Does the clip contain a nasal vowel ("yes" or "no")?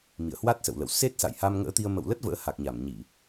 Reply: no